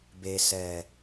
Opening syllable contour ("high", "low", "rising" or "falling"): low